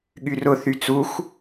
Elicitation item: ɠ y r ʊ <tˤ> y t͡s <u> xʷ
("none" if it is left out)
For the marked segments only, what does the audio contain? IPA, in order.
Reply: θ, u

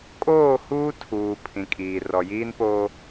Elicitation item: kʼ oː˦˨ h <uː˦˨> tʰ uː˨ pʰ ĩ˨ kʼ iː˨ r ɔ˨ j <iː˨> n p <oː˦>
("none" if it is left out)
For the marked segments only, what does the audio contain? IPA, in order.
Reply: uː˦, iː˦, oː˦

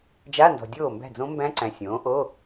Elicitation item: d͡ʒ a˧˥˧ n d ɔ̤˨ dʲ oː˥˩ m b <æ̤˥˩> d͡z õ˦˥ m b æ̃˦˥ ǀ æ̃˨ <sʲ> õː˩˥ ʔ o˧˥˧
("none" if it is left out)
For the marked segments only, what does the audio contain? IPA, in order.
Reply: æ̤˥˩, sʲ

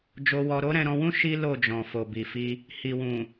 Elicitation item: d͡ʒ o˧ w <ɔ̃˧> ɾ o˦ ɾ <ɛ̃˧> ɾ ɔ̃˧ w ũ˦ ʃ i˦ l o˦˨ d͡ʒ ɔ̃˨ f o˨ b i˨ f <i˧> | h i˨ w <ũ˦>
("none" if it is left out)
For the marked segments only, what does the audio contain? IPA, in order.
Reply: ɔ˧, ɛ̃˧, i˧, ũ˨

